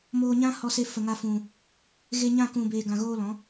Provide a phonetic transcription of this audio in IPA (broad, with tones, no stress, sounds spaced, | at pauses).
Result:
m oː˧ ɲ ã˦ h ɔ˧ s e˧ f ə˨ ŋ a˧ f ũ˨ | ɣ e˧ ɲ ã˦˨ k ũ˨ b eː˨ ɡ ã˨ ɣ oː˧ l ɔ̃˨˦